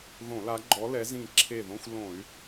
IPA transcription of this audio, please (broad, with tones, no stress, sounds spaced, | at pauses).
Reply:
ð õ˧˩˧ l a˨˦ ɡ͡ǃ ɔ˨˦ l ɛ˨˦ z ĩ˧˩ ǁʰ e˧˩ ð õ˧˥˧ xʷ l õ˧˩˧ y̯